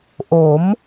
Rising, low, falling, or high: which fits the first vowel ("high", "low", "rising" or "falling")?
rising